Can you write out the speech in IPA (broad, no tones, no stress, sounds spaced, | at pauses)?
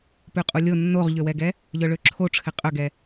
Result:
p ʉ qʼ u lʲ o nː o ʁ ʎ ø w ɛ ɡ ɛ | ʎ œ ɭ ø ǁʰ o ʈ͡ʂʰ ɘ qʼ œ ɡ ɛ